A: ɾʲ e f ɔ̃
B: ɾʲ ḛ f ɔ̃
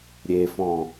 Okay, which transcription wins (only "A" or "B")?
A